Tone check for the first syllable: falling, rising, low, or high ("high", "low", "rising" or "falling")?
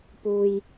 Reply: low